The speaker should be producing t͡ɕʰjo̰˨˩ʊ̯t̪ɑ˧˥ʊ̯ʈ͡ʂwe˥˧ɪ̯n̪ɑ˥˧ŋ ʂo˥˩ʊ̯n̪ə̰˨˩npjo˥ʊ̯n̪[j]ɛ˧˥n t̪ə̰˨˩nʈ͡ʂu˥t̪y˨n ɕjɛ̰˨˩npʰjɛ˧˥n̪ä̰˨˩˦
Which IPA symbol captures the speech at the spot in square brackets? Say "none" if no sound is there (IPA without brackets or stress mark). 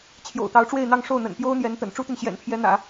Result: j